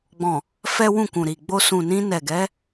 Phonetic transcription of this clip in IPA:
ɡ͡b ɔ̃˨ | f ɛ˦ w ũ˦˨ k ũ˨ ɾ i˨ ɡ͡b o˧ s ũ˨ n ĩ˧ n ɛ˨ ɡ ɛ˨˦

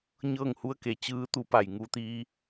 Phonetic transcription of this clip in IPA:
ɲ ɤː˥˨ ŋ h u˧˥ ə̯ k e˩ t͡ɕ ɯː˧˥ t̪ u˧˥ p a˧˩ j ŋ u˧ t̪ iː˧

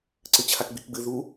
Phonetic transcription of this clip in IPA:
ǀ ɨ t͡ɕʰ a k ɡ͡b i k ɡ͡b ɨ ð u

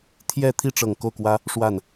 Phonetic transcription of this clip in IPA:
t̪ʰ j ɛ˥˧ t̪ʰ i˥˩ ʈ͡ʂ ɤ˨˩ ŋ k o˥˩ ʊ̯ k w ä˥ | ʂ w a˥˩ n

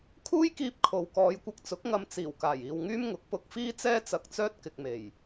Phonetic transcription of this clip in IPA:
kʰ uː˥ j k iː˧ p̚ kʰ o˨ w k ɔː˨˧ j kʷ ɐ˧ k̚ t͡s ʊ˨˥ k̚ ŋ ɐ˧ m t͡s iː˨˩ w k aː˨˩ j iː˨ w ŋ yː˥ m ŋ ʊ˨˥ k̚ p ʊ˧ k̚ f iː˥ t͡s ɛː˥ t͡s ɐ˧ k̚ t͡s œː˥ t̚ k ɪ˨ k̚ m e˨˩ j

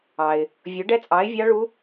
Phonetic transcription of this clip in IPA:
ɑ˨ ɪ̯ | vʲ o˨˥ ɖ ɛ˦˥ t͡sʼ ɑ˨˥ ɪ̯ vʲ ɑ˦˥ ɭ u˦˥

